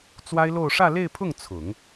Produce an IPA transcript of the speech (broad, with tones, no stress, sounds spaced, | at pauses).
t͡s w a˥ ɪ̯ l o˥˧ ʊ̯ ʂ ä˥˧ l e˥˧ ɪ̯ pʰ ʊ˥˩ ŋ t͡sʰ ʊ˨˩˦ ŋ